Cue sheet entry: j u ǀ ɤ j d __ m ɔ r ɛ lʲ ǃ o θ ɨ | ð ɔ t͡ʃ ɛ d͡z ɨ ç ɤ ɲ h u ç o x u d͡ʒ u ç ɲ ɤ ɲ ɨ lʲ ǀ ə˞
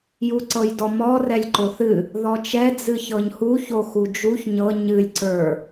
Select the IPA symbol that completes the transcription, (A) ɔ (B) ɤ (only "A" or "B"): A